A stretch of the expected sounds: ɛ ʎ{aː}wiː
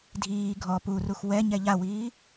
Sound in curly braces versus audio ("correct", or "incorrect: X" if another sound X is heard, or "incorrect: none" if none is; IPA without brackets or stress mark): incorrect: a